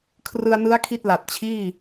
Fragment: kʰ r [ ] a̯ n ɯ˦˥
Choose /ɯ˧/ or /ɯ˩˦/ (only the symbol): ɯ˧